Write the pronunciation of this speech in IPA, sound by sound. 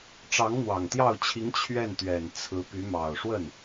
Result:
ʈ͡ʂ ɑ˧˥ ŋ n̪ w ɑ˨˩ ŋ t̪ j ɑ˥˩ ʊ̯ t͡ɕʰ i˧˥ ŋ t͡ɕʰ ɥ ɛ˥˩ n t̪ ɥ ɛ˨˩ n t͡sʰ ɹ̩˧˥ p y˧˥ m ɑ˨˩ ʊ̯ ʂ w ə˥˩ n

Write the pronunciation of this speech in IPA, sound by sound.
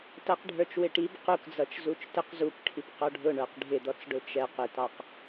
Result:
t ʌ q ɖʱ ə˞ t͡ʃ w ɪ ʈ i b q u k d͡z ʌ t͡ʃ z u t͡ʃ t ɪ q z u p ʈʰ i p q ɔ ɖʱ ʊ ɳ ə˞ q ɖʱ ɪ d̪ ɔ t͡s ɖ ʊ t͡ʃ ɛ q ɪ t ɑ q

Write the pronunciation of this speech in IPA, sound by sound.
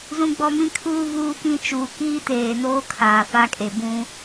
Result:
z ũ˦ ɡ͡b ɔ˦ m ĩ˦ kʰ uː˦ v uː˦ k ĩ˦ t͡ʃ uː˨ k iː˦ t eː˨ n oː˦ kʰ aː˨ f a˦ kʼ e˨ b ũ˦

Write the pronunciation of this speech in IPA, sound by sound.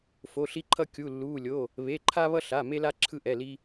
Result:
f o˩˧˩ ɬ i˧ ǃʰ ʌ˧ kʲ u˩˧˩ lː uː˩˧˩ lʲ o˩˧˩ | β e˩˧˩ ǃʰ a˧ β ʌ˧ ɬ a˩˧˩ m e˧ l a˧ ǁʰ ɯ˧ ʔ ɛ˩˧˩ l i˧

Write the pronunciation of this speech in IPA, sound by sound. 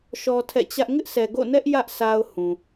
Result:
ʃ ɔ˦ tʰ ɛ̰˦˨ t͡ɕ ä˦ ʔ ŋ ɪ˦ ʔ s ɛ˨ ɡ o̰˦˨ n ɛ˦ ʔ j ä˦ ʔ sʰ a˦ ʊ̯ h ũ˨

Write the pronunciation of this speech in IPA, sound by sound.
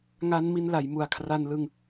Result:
ŋ a˦˥ n m i˧ n l a˩˦ j m u˨˩ a̯ kʰ r a˧ n l ɯ˧ ŋ

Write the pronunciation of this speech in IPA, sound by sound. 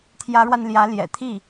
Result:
t̪ʰ j ä˧˥ ɻ w a˧ n l j ä˧˥ l j ɛ̰˨˩ t̪ʰ i˥˩

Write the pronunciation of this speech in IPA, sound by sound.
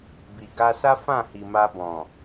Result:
b i˨ ɡ a˧ s a˦ f ã˦˨ h i˨ m a˧ b ɔ̃˨

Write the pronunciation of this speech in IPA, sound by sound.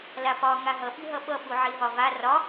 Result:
l a p ɒ ŋ a ɦ ʌ ɓ i ɦ ʌ ɓ ʌ ɓ u ʕ i ɦ ɒ v a r ɒ

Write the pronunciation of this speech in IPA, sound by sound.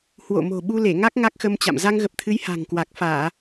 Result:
h w o̰˧˨ m o̤˨˩ ɓ u˧ l e˧˩ ŋ a˦˥ k̚ ŋ a˦˥ k̚ x ə˧ m t͡ɕ a̰˧˨ m z a˧ ŋ ɣ ə˨˩ p̚ t̪ʰ ɨ˨˦ j h a̤˨˩ ŋ k w a˨˩ k̚ f aː˧˩˨

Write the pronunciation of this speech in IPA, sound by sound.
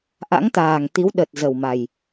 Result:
ʔ a̰˧˥ ŋ t̪ aː˨˩ ŋ t̪ i˨˦ w ɗ ə˨˩ t̚ z ə˨˩ w m a˨˩ j

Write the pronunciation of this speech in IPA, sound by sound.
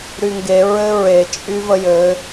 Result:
ɾ y ŋ ɡ e ɹ ɘ ɹ e t͡ʃʼ y v ə j ɘ

